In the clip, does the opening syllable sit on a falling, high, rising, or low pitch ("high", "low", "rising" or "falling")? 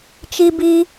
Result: high